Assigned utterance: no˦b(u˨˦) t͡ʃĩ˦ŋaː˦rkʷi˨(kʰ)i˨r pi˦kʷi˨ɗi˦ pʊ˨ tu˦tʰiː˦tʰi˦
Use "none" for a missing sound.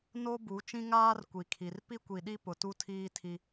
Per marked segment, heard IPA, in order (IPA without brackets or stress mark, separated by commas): u˨˦, kʰ